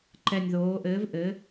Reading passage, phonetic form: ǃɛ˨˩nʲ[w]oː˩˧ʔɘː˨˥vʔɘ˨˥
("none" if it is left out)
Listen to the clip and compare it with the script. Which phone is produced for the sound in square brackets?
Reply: ð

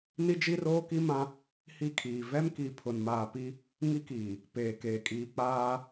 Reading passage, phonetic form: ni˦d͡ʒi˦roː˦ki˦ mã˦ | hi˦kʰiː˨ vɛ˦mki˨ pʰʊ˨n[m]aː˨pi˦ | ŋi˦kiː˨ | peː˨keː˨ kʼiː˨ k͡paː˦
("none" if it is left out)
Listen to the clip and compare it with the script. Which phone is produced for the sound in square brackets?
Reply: m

